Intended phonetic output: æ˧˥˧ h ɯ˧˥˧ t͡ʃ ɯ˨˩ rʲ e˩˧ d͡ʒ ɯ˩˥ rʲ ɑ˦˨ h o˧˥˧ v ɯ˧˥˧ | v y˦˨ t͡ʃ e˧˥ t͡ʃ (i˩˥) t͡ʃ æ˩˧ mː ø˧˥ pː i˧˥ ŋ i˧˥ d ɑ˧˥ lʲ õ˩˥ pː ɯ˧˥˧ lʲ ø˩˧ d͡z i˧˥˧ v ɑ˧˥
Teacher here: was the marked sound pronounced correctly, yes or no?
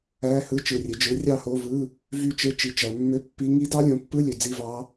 yes